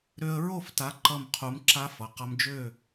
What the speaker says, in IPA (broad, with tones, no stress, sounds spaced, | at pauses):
ɾ ø˧ ə̯ ɹ o˥˨ f t a˨˥ ǃ ʌ˧˩ m qʰ u˩˧ m ǁ a˧ f ʌ˩˧ q ʌ˧ m d͡ʒ ø˥˨